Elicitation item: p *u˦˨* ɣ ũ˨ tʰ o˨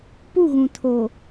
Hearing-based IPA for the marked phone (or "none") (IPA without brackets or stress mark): u˦˨